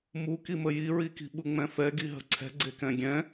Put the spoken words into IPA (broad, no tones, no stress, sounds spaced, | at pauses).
m u k i m ə j i ɹ i k i̤ ɓ u ŋ͡m ɛ̃ f ɛ ɡ i ɦ ə̤ ǀʰ ɛ̤ ɡ͡ǀ e k ɛ̃ ɡʲ ɛ̃